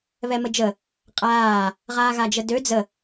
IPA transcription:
βɛməd͡ʒə | qʼaː | ʁaːɣad͡ʒədø d͡zə

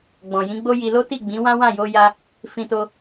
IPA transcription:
ɡ͡bɔ̃˨jĩ˨˦ɡ͡bo˦ji˧ lo˦ti˦˨ɡ͡bĩ˨˦wã˦ wã˦˨jo˧ja˧ | fĩ˧to˧

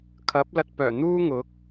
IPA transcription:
kʰɐ˨˥p̚lɐ˧t̚pœː˨˩ n̪uː˥ŋʊ˨˥k̚

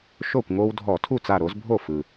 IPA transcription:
ʃo˥˩kʷŋo˦w dʱɔ˧˩˧tʰu˥˩ t͡sa˧˩ɾo˨˦zbʱo˥˩ fɯ˩

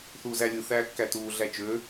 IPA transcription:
θuːzælʲɯ θæːkːætuː ɮæt͡ʃø

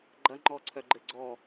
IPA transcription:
ɡ͡ǃɐŋ͡ǃɔǀʰœ ɡ͡ǃɘɡ͡ǀɔ

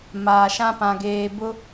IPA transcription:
maː˨ʃã˦pã˨ɡeː˨ bʊ˦

